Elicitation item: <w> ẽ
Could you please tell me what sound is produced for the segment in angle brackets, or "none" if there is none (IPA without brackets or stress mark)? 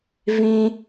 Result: v